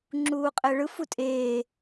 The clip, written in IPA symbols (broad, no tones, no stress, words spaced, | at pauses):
ŋ͡ǁuːqʼɛɭɯ futʼeː